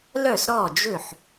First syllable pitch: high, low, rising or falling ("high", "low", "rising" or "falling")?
falling